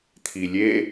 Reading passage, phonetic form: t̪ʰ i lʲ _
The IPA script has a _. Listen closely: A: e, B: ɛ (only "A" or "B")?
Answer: A